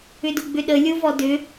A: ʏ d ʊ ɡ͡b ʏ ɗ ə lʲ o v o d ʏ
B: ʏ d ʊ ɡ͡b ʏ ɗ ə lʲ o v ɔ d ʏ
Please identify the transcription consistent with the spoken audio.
B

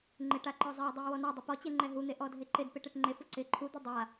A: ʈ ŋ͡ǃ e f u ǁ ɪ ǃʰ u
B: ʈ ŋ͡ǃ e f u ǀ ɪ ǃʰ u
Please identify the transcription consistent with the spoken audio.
B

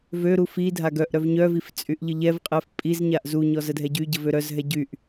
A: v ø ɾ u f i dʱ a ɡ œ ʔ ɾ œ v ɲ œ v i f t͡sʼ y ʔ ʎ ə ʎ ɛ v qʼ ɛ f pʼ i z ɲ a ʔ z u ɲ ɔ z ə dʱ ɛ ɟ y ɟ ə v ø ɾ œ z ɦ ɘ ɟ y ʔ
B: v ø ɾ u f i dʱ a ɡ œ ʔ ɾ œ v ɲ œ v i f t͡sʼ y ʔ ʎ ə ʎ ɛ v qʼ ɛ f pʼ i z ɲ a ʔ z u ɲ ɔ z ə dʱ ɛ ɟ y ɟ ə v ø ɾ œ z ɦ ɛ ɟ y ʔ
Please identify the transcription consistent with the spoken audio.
B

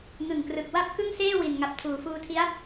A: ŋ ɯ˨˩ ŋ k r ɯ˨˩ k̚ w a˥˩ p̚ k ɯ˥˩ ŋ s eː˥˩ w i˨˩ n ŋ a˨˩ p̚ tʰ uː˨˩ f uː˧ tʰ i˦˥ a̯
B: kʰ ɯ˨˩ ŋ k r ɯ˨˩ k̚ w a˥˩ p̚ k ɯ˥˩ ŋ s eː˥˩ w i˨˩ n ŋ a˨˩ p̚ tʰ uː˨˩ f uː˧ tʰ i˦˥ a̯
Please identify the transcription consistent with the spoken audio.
A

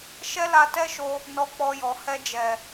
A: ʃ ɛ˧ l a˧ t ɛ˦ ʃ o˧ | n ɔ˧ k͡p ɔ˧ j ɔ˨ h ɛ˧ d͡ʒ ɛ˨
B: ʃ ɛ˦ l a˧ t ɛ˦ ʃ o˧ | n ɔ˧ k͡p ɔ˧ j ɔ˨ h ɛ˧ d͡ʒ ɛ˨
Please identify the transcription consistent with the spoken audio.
B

